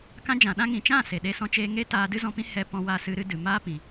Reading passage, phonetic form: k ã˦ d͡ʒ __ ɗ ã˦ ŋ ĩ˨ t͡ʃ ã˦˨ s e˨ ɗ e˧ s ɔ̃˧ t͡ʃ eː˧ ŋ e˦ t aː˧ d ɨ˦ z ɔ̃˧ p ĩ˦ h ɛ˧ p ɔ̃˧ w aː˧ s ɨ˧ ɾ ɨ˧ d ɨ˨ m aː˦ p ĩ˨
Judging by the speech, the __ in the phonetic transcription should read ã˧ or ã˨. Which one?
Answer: ã˨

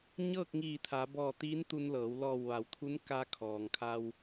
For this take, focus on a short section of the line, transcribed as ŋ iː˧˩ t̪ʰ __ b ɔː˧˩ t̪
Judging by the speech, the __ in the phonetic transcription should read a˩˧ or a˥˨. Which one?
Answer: a˩˧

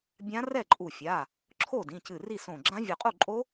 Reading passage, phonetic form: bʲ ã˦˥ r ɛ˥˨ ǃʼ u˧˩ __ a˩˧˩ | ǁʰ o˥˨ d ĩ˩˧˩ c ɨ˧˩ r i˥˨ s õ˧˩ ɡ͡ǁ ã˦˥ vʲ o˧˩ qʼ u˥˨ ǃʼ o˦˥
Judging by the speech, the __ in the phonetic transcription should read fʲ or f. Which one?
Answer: fʲ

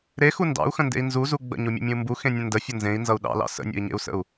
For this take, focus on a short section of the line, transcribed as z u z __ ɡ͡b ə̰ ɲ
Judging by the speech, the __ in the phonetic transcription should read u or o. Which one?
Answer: u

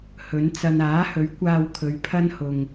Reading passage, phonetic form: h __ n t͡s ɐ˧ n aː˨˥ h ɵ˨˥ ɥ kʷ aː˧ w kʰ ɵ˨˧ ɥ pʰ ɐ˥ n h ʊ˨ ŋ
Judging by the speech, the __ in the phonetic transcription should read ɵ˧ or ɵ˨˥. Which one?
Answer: ɵ˨˥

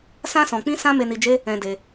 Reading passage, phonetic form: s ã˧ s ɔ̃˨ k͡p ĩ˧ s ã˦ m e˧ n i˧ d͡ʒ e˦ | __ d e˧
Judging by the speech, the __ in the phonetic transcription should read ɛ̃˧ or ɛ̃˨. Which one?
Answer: ɛ̃˧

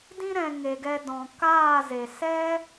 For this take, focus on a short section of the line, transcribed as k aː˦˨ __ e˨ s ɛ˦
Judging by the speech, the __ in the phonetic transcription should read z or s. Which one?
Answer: z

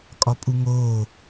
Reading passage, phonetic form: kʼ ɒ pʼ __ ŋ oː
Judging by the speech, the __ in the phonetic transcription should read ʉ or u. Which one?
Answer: u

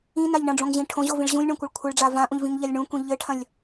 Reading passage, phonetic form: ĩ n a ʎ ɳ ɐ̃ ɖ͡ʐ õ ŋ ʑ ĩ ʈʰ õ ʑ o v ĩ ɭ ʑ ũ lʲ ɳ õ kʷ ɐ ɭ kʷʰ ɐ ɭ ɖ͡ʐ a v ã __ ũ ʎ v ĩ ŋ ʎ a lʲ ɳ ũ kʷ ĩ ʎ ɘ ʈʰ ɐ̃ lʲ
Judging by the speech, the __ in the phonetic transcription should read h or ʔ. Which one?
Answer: ʔ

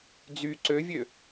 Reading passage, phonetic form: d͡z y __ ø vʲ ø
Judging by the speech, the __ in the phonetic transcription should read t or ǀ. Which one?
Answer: ǀ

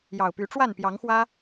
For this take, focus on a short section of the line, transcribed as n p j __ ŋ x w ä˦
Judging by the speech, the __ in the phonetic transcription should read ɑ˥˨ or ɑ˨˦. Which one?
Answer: ɑ˨˦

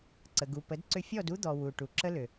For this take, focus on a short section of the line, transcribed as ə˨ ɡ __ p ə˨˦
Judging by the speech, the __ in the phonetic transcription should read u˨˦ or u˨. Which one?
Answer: u˨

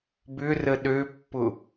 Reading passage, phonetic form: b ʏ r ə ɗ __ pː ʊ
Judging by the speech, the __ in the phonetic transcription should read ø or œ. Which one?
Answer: ø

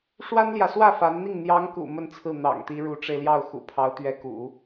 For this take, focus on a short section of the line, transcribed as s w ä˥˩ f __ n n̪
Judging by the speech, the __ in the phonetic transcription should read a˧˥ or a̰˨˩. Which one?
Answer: a˧˥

